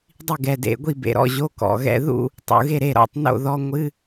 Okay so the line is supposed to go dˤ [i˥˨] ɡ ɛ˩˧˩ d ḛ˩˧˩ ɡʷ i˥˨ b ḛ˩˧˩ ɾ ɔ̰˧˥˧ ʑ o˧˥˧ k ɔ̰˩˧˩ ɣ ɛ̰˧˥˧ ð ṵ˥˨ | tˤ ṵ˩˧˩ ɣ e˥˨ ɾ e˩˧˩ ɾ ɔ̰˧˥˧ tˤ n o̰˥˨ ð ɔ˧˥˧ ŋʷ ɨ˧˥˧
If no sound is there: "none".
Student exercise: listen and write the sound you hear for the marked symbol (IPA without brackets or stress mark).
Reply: i˥˨